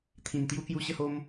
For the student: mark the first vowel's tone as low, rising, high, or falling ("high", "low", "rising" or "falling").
low